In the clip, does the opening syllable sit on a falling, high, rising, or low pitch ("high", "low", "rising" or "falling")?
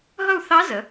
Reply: falling